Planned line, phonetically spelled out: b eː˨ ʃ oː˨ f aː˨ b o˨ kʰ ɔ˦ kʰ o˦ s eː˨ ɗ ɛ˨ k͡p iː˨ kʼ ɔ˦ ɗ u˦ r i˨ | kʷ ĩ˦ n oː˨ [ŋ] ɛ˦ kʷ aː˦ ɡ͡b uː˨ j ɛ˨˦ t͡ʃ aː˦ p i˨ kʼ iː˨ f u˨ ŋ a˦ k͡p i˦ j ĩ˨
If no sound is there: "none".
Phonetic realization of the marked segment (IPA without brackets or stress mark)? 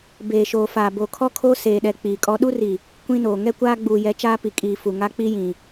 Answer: ŋ